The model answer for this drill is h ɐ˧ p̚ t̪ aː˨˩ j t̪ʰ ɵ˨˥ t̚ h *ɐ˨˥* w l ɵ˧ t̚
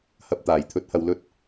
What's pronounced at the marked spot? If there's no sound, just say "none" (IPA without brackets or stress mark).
ɐ˨˧